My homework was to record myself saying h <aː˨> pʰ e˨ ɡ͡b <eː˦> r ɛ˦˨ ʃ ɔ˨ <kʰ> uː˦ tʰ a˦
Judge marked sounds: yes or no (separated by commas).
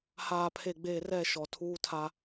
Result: yes, no, no